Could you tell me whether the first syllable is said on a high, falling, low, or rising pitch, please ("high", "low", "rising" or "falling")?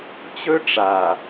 high